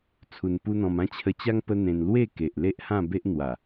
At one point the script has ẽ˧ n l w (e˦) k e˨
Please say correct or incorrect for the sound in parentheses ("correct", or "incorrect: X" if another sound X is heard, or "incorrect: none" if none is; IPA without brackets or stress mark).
incorrect: e˥˧